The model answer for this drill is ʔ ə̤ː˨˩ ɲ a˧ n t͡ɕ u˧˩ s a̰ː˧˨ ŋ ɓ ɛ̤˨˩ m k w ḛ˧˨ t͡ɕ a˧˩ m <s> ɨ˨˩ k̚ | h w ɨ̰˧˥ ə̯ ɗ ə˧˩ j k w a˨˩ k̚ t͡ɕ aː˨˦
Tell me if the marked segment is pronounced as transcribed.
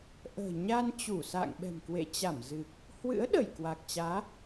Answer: no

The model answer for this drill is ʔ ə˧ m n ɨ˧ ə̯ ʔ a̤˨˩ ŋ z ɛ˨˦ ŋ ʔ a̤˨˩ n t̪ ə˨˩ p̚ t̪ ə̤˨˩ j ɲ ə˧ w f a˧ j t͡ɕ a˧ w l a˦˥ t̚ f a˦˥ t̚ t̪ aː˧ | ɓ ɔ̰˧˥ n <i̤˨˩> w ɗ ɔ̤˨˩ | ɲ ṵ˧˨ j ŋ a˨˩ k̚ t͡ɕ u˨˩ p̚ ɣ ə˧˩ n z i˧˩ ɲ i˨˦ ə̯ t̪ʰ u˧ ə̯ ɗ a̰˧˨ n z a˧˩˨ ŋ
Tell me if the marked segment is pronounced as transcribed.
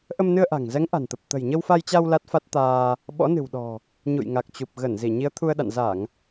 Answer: no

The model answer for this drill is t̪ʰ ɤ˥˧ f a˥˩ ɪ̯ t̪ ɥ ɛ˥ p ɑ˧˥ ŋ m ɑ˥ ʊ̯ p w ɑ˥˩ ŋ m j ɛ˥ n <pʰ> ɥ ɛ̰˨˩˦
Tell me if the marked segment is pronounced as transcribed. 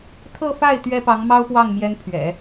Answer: yes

